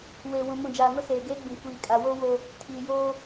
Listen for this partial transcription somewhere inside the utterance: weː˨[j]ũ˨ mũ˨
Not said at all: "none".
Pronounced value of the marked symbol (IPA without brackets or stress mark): w